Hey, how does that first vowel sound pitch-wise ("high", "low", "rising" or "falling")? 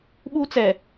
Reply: high